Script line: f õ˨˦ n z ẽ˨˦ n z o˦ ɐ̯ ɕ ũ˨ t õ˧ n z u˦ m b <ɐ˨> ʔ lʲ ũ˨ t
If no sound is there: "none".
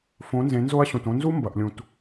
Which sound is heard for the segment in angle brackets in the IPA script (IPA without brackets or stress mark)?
ɐ˨